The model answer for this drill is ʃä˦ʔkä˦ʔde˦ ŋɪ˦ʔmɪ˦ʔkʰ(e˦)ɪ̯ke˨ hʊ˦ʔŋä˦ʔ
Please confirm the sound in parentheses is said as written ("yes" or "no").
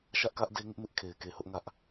no